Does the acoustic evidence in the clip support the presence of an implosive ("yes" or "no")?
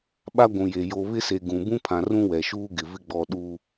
yes